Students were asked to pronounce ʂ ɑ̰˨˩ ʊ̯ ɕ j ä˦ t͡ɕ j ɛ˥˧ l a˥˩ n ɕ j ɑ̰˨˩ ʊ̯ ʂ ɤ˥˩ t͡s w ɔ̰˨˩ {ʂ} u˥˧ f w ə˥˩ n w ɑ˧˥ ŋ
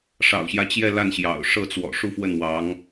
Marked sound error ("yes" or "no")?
no